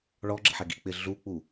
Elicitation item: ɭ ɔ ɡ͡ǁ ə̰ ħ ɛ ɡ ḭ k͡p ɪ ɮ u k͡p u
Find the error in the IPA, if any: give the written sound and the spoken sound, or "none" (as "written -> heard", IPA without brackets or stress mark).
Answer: none